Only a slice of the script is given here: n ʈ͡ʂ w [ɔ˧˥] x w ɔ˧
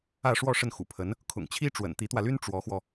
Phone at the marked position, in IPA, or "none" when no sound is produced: ɔ˧˥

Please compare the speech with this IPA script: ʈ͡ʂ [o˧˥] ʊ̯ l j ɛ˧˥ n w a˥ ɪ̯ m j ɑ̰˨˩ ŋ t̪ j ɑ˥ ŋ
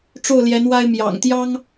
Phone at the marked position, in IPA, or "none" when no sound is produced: o˥˩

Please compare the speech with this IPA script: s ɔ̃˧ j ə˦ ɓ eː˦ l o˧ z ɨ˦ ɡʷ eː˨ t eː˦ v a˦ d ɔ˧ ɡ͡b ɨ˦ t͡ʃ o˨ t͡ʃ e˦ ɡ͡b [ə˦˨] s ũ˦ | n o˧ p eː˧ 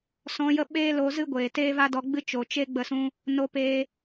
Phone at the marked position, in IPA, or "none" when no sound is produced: ə˦˨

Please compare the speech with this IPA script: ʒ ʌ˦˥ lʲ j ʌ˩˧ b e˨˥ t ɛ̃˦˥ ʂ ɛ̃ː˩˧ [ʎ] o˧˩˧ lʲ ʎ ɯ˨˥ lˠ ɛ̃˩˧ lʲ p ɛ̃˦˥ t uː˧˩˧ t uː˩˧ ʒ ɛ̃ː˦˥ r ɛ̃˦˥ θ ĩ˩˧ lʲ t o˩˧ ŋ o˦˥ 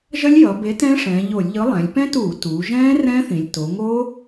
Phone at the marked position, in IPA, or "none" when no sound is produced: ʎ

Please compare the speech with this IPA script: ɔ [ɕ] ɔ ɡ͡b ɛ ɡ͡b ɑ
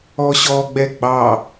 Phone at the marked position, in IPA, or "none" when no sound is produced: ɕ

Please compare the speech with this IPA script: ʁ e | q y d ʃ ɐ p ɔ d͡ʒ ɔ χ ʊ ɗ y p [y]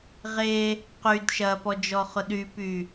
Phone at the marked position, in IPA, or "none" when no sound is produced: y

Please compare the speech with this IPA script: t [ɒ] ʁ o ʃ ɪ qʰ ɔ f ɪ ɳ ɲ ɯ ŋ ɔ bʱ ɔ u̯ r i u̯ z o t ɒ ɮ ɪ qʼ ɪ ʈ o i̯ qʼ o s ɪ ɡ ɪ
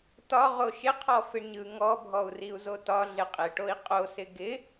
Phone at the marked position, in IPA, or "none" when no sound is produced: ɒ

